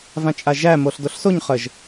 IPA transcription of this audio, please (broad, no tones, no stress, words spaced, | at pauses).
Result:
vãt͡ʃʼaʒæ moɬdoɬsoɲ χəʒ